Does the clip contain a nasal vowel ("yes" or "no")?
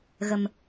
no